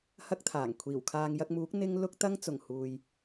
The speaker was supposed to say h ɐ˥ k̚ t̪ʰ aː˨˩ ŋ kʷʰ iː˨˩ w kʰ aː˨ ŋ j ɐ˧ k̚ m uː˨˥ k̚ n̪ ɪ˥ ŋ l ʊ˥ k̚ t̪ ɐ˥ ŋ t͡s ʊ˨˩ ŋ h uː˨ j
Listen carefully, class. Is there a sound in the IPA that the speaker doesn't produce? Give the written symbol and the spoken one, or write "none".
none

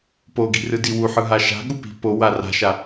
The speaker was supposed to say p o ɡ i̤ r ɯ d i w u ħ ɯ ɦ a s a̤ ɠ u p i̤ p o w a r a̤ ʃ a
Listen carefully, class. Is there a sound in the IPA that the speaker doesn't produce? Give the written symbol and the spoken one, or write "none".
s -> ʃ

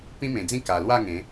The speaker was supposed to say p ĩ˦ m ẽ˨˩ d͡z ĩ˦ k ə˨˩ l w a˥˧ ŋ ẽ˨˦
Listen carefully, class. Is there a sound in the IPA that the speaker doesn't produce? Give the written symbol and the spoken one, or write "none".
ə˨˩ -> a˨˩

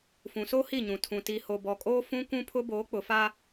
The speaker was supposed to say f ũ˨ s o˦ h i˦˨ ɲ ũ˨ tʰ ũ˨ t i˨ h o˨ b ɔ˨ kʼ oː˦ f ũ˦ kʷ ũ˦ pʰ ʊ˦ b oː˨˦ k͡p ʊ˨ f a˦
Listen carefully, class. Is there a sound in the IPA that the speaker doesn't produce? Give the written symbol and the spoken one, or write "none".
none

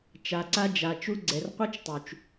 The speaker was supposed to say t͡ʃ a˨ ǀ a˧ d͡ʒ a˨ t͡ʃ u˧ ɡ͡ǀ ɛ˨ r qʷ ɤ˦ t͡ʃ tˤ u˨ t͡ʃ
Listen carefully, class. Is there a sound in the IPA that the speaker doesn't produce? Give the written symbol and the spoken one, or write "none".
none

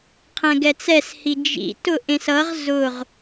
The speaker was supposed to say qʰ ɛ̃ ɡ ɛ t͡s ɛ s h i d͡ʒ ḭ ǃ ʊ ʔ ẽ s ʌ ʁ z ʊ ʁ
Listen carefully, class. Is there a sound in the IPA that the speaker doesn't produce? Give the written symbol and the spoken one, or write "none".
ǃ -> t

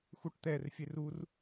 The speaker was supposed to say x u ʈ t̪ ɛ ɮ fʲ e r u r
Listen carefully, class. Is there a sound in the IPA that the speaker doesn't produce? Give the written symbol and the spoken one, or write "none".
ɮ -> r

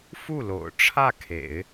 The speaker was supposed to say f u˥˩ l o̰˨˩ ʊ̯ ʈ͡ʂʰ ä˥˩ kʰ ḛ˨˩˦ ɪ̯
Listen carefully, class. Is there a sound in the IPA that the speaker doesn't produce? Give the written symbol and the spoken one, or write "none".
none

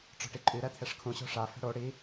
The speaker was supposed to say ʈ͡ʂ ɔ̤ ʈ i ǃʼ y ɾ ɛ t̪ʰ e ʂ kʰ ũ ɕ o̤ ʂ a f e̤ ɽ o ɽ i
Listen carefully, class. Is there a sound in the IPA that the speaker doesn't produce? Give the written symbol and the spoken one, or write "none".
none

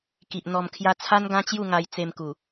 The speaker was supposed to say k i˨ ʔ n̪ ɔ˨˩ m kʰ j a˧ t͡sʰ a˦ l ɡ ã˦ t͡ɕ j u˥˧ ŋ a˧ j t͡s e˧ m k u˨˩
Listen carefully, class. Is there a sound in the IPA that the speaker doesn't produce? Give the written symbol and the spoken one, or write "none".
l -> n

